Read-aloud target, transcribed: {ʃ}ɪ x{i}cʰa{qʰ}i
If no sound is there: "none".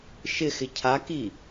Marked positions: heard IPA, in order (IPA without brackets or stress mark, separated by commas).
ʃ, ɪ, k